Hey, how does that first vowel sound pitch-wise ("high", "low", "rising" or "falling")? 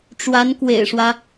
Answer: rising